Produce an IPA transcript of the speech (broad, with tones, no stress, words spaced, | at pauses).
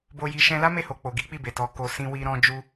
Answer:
bo˧ji˧ ʃɛ̃˧la˦ me˦˨ho˨ k͡po˨ɡi˨˦k͡pi˦˨be˨ tɔ˨ko˨ sĩ˧wi˧ ɾɔ̃˧ d͡ʒu˦